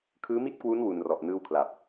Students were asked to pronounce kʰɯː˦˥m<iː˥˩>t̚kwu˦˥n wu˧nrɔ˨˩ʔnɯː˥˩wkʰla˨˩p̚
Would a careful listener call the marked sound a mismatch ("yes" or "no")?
yes